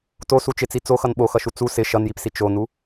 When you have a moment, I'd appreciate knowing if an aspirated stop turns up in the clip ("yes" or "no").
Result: no